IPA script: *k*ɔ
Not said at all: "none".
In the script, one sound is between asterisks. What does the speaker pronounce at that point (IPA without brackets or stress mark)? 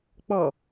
k͡p